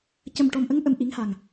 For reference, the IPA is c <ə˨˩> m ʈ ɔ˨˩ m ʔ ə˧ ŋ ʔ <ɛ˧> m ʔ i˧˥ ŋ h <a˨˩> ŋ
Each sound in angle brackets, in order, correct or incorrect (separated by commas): correct, incorrect, correct